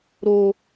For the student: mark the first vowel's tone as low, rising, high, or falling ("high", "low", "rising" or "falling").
low